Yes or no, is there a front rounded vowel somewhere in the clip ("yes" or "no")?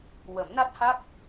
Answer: no